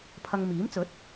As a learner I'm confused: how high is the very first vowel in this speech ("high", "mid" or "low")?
low